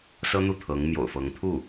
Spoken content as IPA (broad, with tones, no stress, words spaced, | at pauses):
sɤ˥n̪u˥˩ t̪ʰɤ˧˥ŋ mjo̰˨˩ʊ̯fɤ˧˥ŋ t̪ʰu˥˩